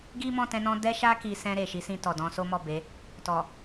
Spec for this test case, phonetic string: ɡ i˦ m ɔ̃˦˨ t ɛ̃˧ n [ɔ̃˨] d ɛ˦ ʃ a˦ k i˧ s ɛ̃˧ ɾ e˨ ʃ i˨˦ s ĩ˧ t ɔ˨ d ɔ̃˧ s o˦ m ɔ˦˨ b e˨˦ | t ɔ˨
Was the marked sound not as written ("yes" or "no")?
yes